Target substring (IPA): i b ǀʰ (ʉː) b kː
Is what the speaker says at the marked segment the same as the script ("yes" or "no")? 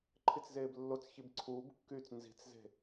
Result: no